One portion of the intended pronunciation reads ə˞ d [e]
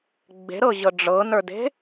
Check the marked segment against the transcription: incorrect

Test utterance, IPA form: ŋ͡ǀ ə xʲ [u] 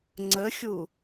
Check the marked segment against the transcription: correct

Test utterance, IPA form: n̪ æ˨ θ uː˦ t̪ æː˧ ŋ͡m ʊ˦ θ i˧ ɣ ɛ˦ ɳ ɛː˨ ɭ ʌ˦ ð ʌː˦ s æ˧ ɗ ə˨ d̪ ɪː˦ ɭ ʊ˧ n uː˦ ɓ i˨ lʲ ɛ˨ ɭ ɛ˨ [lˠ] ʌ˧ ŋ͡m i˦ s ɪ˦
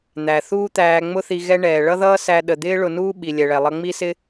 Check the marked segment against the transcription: correct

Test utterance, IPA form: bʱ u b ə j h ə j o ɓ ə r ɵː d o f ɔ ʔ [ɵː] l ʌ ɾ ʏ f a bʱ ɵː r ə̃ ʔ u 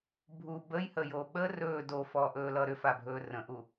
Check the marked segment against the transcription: correct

